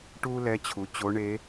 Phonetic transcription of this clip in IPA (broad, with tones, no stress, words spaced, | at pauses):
ʈuː˥lɛ˧˥t͡ɕʰu˩˧ t͡ɕo˧˥ɳe˧˥